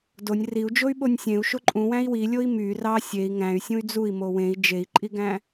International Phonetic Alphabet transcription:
d o nʲ r i u̯ d͡ʒ o y̯ ɓ o nʲ sʲ ẽ u̯ ʃ o ǃʼ ũ w æ̃ i̯ w i lʲ o i̯ m y r ɑ sʲ e i̯ ŋ æ̃ y̯ sʲ ũ y̯ d͡z u i̯ m o w ẽ i̯ d͡ʒ e i̯ ǃʼ i ɡ æ̃

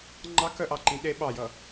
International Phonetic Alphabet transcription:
ŋ͡ǃ ɑ k œ ʔ ɑ ǃ ĩ ɗ e ɓ ɑ j ʌ

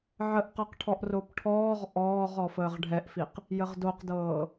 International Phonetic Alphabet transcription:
ʕ ə ʔ q ɤ q ʈʰ ɔ ʔ r o p ʈʰ ɔː ʁ ʔ ɔː ʁ ɔ f əː ʁ ɖʱ ɛ ʔ f i q | j ə ʁ d o q d ɤː

